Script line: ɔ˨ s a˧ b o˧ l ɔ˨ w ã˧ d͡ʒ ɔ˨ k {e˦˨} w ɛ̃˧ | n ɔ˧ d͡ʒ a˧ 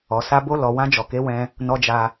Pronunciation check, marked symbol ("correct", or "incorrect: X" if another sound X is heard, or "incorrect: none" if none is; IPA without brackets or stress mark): incorrect: e˨˦